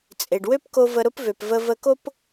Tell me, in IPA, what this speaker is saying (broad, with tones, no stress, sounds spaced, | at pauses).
t͡sʼ e˩ ɖ w ø˥ p k o˧ v ə˧ ɾ ʊ˥ p v ø˩ p v ə˧ v ə˧ k o˥ p